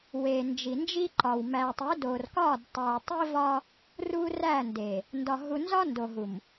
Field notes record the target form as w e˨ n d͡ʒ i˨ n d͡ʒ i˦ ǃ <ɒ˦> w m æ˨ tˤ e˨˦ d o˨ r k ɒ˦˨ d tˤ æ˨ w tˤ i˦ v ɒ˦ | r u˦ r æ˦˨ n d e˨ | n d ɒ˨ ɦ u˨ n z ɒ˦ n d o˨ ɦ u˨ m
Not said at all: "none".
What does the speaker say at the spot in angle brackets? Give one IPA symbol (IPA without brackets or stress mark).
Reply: ɒ˨